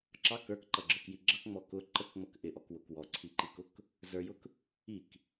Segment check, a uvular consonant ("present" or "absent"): absent